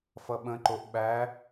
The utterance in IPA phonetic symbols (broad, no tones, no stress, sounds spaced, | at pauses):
f ʌ ɓ ə̃ ǃ o ʔ ɓ æ